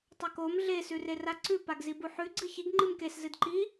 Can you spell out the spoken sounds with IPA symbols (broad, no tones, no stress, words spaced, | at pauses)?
tˤɐkom ɮe sʉreraǀʉ paɡzibuħʉ ɡ͡ǀɨçiɡ ŋ͡ǃɨmkes zɨdǃi